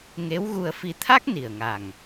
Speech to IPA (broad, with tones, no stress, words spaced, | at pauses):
ŋe˧˥wɣu˧ə̯fi˧ t̪ʰa˦˥k̚ ni˨˩ə̯ŋa˨˩ŋ